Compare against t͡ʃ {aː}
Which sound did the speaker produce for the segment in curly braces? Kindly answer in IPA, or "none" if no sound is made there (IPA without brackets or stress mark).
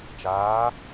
aː